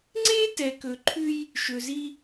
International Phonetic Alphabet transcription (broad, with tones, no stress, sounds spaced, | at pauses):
ŋ͡ǀ e˥ t ɛ˨ k ɵ˨ ǃʰ ʉ˦ j | ʃ ɵ˨ z i˦